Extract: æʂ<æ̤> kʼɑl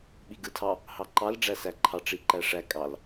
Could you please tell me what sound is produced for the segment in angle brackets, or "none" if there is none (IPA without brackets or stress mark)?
æ